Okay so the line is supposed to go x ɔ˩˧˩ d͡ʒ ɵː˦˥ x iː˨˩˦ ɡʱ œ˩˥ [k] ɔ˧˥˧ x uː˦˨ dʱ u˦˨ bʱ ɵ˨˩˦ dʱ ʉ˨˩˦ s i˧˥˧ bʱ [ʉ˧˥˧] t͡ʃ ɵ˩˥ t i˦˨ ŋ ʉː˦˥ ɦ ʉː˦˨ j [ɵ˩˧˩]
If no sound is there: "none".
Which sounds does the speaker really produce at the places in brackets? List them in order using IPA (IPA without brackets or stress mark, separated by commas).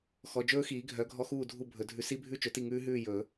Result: ɡʱ, ʉ˦˥, ɵ˨˩˦